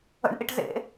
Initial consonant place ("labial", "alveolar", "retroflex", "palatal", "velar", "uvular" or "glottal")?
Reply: retroflex